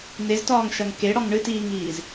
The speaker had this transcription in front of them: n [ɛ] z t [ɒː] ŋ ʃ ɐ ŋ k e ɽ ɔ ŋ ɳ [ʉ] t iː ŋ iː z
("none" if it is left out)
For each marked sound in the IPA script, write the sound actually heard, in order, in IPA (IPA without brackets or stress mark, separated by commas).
e, ɒː, ɨ